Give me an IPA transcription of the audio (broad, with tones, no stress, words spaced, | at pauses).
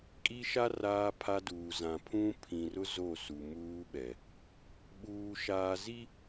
kʼi˦ʃa˦ raː˦pʰa˦duː˨ zã˨ pʰũ˦ pʰĩ˨rʊ˦ zo˦˨su˨muː˦ɓɛ˨ | ɓuː˦ʃaː˦ zi˦